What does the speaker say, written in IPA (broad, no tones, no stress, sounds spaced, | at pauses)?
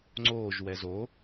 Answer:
ŋ͡ǀ oː ʒ w ɛ z o